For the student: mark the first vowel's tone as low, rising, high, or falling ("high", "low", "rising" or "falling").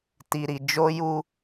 low